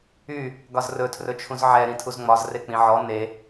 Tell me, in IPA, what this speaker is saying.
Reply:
y | ɡɒzrɵtʰrɵt͡ʃʰũz ʕɛ ɾĩtʰuzŋ͡mɒz rek͡pĩʕɔ ne

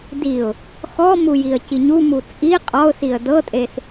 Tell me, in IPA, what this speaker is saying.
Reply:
diʊ̯ | xɔmu jiə̯ciɲumu t͡sʼi qʼɔʊ̯siə̯ dɤtʼes

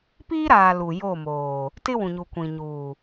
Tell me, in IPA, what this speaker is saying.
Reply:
piː˦ɾaː˨ lu˨jo˦˨moː˨ | tɪ˦wũ˨ɲu˨ kʷĩ˨ ɲuː˨

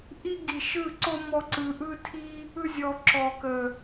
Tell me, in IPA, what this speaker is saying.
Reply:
ʔi˦ɡi˨ʃɯ˦˨ǀo˦ mɔ˦ǀɯ˧ ʔɯ˦tʰi˦ | ɯ˦zʲɔ˧ǁɔ˨ kə˨

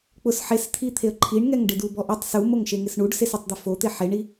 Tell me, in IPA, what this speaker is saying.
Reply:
k͡pʊs ħest̪ʰit̪ʰeə̯ ǃʰiɳŋɛŋ ɖɪdubɔʔʊtˤ sumoŋʃeŋɪs ɳuɖ sesɪtˤd̪ɪ fot̪e ħeɳi

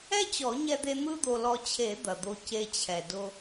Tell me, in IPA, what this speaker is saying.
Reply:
ɛ˥t͡ɕɔ˨˩˦ɲɛ˧d̪e˧ n̪ɯ˥d̪o˧lɔ˧ t͡ɕʰe˨˩˦ d̪ɐ˩d̪o˧ ce˧t͡ɕʰɛ˩dʊ˧

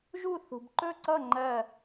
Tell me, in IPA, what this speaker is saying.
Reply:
ʒu˥˧θṳ˧bǃɵ˥˧ǀʌ˥˧ ŋ͡ǃɜ˥˧

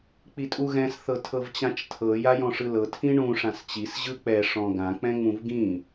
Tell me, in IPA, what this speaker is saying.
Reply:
k͡pitʼuɣɛ̃s θɤtʰɤvt͡ɕãt͡ʃtʰɤ jajɔ̃ʂɯlɤ tʰĩɳũ ʂãst͡ɕis ʑɯk͡pɛ ʂɔ̃ɡã k͡pɛ̃ŋ͡mũvɡĩ

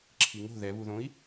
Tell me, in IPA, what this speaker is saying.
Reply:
ǁʰiŋo̤ ðɛβuðõi̯

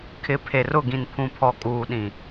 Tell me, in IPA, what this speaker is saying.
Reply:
kʰɪ˨˦pʰe˨rʊ˦˨ ɡĩ˨npʰũ˨pʰɔ˨ kʼuː˨ɗĩ˨

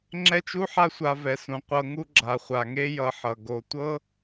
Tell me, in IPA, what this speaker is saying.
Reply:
ŋ͡ǁɛ˦t͡ʃu˦ħa˦sʷa˧ vɛ˨sũ˨ qʷɤ˧ŋu˦ ɡ͡ǁa˨χʷa˨ŋe˦jʌ˧ ħʌ˨ ɡo˨tʷɤ˦

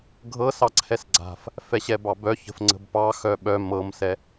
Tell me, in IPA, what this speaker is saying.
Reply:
ɡʱɤsɑǀʰɛs ɡ͡ǀa̤f | fɛɕɛbɑbœ çə̤fŋ͡ǀə̤bpɑ xœɓœ mɤmsɛ

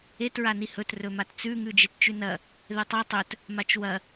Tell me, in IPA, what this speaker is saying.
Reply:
et ɹanihɵt rɵmatt͡sʉ ŋʉd͡ʒett͡ʃʉnɐ | ðetˤa tˤɵt | mat͡ʃwɐ

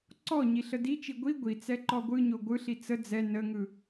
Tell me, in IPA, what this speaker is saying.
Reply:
ǀɔɲi ɬədit͡ʃi ɡʷi ɡʷit͡sɛ ǃɔɡʷɯɲo ɡʷɯɬi t͡sə d͡zɛ nəŋɯ

